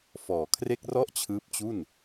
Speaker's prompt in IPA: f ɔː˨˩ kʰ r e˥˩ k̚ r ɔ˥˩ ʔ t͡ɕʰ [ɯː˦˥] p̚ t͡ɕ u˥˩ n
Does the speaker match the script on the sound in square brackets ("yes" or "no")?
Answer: yes